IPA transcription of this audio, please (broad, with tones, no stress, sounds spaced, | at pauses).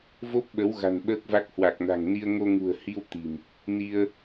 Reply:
v o˦˥ p̚ ɓ ə˨˦ w ɣ a̤˨˩ n ɓ əː˦˥ k̚ v a˦˥ k̚ h w a˨˩ k̚ n a̤˨˩ ŋ n i˧ ə̯ ŋ o˧ ŋ ṳ˨˩ ə̯ h i˧ w t̪ i̤˨˩ m | n i˧ ə̯